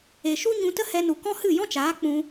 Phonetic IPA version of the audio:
e˨ ʃ u˦ ɲ ũ˧ t ə˦ h ɛ˧ n u˨ k ɔ̃˦ h ɨ˦˨ j ɔ̃˦ t͡ʃ aː˨˦ k͡p ũ˧

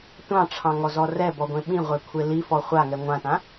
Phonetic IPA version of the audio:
tʷ ɑ̃ ʈ͡ʂʰ ɑ̃ ŋ ɔ z ɔ r ɛ b ɔ ɡʷ ẽ ɓ ĩ ʁʷ e kʷʰ e l i f ɔ χʷ a ŋ ɛ ŋʷ ã t ã

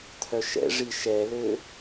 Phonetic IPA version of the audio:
t̪ʰ œ ʃ ɛ̰ ʐ i ʃ ɛ l ø

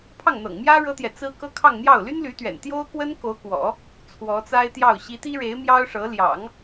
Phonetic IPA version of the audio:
pʰ ɑ˥˩ ŋ n̪ ɤ̰˨˩ ŋ m j ä˥ ɻ ɤ˥ t̪ j ɛ˨ t͡s ɹ̩˥ k ɤ˥ kʰ ɑ˥˧ ŋ n̪ j ɑ˥˩ ʊ̯ l y˥ n l y˧˥ t̪ ɥ ɛ̰˨˩ n t̪ j o˥ ʊ̯ k w ə˥ n k o˧˥ ʊ̯ k w ɔ̰˨˩˦ | t͡sʰ w ɔ˧˥ t͡s a˥ ɪ̯ t̪ j ɑ˥˩ ʊ̯ ɕ i˧˥ t̪ i˥ ɻ e˧˥ ɪ̯ m j ɑ˥ ʊ̯ ʂ ɤ˧˥ l j ɑ̰˨˩˦ ŋ

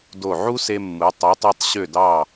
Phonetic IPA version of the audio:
d o˧˩ ʕ u˥ s e˧ mː ɯ˩˧ tˤ ɯ˩˧ tˤ ɑ˧ tˤ ɕ ø˧˩ d ɑ˧˩

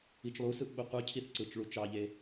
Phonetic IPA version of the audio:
i t͡ʃ lˠ u s ɯ ʔ ɓ u qʷ ɯ cʰ i θ ǀ ɯ t͡ʃ ɭ u t͡ʃ ɑ ʎ e

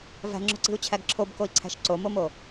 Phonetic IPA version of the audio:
v æ̤ ŋ͡ǁ o̤ ǀ i̤ u̯ t͡ɕʰ æ ɡ ǁʰ o b k o i̯ ǀʰ æ̤ ʃ ǀ o m o m o

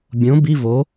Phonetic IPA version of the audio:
bʲ õ b i v o

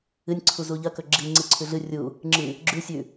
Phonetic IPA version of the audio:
ɨ nʲ ǀʰ u z u ʎ ɐ k ɵ ɡ͡ǁ i ŋ͡ǀ ɨ ǀʰ ʉ ɮ ɨ rʲ u | ŋ͡ǁ ɨ | ɡ͡ǁ ʉ sʲ ʉ

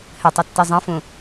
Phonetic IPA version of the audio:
h ɘ tˤ i tː i zˤ ɐ̃ f ũ

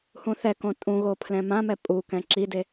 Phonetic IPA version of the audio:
h ũ θ ɛ k õ tʼ ũ ɣ o pʰ l ɛ̃ m ã m ɛ pʼ u k ɛ̃ ǁ i d e

